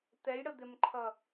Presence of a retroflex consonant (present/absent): present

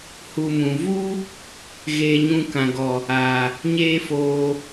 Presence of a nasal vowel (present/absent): present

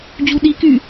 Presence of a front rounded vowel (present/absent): present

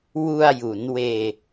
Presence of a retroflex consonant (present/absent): absent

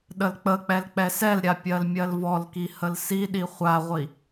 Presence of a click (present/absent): absent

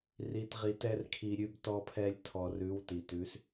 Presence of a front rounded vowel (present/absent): absent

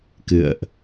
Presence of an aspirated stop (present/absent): absent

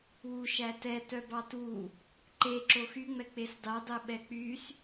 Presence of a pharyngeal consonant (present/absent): absent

